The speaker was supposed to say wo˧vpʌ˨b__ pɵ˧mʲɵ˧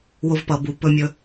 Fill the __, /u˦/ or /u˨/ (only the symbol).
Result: u˨